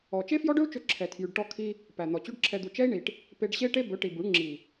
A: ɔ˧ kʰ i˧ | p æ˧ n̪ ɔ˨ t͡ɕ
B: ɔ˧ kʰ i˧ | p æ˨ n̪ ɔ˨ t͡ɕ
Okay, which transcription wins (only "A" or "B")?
B